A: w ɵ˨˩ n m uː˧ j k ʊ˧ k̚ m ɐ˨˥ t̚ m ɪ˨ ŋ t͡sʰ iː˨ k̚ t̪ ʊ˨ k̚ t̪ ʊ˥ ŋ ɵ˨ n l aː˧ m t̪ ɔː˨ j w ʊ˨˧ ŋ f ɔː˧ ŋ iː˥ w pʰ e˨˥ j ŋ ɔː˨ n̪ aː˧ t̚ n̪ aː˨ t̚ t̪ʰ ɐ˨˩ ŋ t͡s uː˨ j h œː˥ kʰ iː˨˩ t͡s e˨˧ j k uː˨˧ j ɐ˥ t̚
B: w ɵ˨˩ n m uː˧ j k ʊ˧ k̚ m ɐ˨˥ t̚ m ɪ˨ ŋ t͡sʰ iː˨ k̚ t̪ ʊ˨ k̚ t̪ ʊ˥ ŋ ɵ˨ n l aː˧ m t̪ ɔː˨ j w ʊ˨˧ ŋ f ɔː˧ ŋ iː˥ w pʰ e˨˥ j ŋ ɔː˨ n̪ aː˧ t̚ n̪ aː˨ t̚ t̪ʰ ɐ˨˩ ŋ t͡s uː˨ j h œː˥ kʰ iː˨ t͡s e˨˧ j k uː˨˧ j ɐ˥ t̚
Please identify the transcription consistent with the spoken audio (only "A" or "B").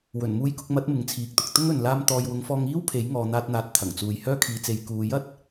B